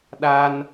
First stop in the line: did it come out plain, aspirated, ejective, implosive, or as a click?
implosive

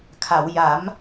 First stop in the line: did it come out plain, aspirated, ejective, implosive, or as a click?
aspirated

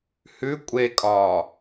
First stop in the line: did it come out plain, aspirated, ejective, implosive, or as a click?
ejective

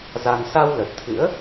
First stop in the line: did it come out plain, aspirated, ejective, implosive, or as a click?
plain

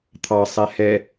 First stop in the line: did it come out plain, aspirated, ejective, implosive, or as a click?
aspirated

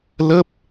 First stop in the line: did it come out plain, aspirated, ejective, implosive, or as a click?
plain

